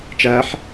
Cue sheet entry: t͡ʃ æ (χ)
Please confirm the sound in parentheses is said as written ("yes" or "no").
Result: no